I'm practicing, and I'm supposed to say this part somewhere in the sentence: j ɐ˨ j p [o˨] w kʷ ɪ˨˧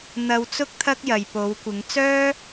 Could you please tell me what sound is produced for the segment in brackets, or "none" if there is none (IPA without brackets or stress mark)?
o˨˧